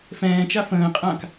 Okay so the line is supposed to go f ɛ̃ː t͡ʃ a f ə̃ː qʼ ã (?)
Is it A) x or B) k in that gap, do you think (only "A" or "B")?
B